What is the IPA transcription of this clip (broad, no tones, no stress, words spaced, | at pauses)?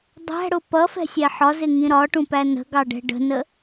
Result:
dˤæ̤ɽʊ pʌfɛ̤sʲɛ ħɒzɪŋĩ ɾɒʈũpæ nə̤ɡɑɖɛ̤ ɖə̤nə